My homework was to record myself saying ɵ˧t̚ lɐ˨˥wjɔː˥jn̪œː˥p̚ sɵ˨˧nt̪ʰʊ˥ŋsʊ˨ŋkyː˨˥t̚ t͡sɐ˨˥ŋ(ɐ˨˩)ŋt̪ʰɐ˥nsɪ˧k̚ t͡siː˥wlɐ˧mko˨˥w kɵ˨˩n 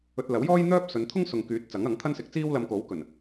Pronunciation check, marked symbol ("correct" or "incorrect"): incorrect